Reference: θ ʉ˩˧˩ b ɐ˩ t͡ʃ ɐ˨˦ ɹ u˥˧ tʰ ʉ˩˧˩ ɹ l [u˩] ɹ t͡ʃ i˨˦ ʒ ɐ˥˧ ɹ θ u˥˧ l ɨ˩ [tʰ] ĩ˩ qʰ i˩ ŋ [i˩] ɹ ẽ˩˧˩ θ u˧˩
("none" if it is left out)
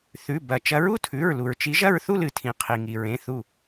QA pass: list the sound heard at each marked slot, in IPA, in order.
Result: u˩, tʰ, i˩

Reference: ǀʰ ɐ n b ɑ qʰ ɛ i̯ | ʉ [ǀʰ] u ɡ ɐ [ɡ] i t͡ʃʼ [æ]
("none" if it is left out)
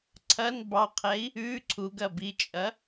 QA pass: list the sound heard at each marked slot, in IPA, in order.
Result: ǀʰ, b, ɐ

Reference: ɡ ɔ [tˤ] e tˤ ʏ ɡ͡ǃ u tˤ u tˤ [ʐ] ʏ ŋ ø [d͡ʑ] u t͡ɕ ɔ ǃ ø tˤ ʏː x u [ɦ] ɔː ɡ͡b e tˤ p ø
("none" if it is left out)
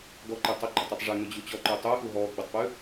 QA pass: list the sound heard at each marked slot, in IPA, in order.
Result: ǃ, ʐ, d͡ʑ, ɦ

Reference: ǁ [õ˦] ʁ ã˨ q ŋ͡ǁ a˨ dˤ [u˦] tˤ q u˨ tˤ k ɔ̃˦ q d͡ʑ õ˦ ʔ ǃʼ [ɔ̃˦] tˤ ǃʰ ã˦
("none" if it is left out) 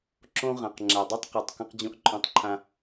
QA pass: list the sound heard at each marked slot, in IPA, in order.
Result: õ˦, o˦, ɔ̃˦

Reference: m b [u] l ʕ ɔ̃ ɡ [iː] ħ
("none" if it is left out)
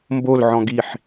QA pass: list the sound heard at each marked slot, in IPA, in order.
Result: o, i

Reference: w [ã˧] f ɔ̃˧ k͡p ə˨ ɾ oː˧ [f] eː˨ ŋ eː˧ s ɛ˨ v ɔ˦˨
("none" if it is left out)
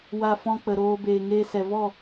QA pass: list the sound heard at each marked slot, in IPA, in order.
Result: a˧, b

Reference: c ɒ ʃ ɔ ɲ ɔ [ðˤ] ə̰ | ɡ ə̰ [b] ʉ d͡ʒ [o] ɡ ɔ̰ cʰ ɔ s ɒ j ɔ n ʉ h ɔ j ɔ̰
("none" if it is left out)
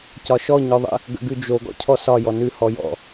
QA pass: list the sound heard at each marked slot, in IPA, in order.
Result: ðˤ, ɡ, o

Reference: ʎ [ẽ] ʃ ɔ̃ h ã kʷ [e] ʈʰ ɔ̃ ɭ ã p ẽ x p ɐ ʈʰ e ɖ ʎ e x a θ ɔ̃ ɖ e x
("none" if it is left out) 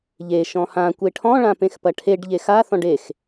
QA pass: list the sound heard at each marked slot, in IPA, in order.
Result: e, e

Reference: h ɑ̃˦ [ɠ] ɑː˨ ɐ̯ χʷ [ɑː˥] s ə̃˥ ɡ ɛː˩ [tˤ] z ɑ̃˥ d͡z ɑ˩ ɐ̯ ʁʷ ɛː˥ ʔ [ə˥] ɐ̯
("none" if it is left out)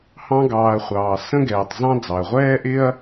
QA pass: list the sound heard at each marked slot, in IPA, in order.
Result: ɡ, ɑː˩, tˤ, ɪ˥

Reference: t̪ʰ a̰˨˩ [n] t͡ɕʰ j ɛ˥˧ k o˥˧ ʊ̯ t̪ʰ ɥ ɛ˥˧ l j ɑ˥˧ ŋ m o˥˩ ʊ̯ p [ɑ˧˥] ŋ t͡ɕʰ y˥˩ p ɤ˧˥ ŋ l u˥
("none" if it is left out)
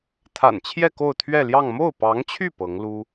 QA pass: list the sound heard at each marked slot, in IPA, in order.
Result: n, ɑ˧˥

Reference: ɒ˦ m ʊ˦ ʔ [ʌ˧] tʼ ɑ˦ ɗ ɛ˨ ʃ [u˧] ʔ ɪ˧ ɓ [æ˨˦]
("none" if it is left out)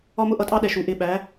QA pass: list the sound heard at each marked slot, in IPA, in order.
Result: ʌ˧, u˨, æ˨˦

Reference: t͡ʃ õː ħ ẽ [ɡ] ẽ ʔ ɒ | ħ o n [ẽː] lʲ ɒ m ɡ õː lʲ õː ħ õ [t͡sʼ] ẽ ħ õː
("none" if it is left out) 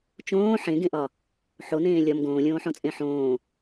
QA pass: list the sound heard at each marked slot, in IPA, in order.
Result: ɡ, ẽː, t͡sʼ

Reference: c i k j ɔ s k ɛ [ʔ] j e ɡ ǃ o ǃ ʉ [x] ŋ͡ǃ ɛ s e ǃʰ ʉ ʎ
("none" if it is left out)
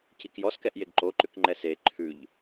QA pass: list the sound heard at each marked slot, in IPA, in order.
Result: ʔ, k

